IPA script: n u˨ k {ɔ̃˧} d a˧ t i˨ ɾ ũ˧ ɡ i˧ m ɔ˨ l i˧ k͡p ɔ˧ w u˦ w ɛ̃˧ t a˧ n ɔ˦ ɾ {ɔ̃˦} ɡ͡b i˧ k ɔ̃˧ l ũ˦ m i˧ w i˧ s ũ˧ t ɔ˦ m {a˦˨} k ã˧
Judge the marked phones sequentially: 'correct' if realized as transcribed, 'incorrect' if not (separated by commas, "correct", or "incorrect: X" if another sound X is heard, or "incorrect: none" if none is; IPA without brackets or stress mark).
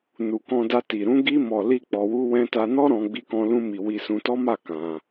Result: correct, incorrect: ɔ̃˧, correct